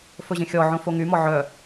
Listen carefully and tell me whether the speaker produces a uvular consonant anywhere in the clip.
no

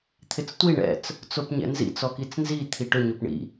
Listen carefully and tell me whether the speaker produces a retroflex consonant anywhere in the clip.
yes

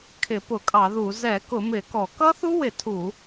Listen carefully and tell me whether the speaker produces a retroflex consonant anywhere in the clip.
no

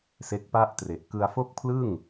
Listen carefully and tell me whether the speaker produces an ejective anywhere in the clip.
no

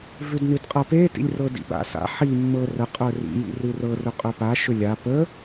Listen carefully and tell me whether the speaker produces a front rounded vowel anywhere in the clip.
yes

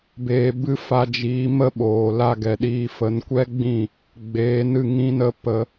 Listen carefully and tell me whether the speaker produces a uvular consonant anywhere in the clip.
no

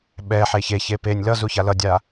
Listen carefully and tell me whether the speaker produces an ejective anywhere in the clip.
no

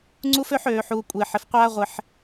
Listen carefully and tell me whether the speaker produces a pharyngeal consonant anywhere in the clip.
yes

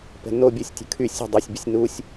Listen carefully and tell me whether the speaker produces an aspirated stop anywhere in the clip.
yes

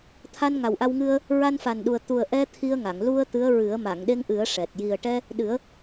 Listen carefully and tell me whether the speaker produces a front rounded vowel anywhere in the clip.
no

